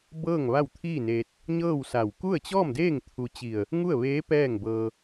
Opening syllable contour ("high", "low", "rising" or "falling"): falling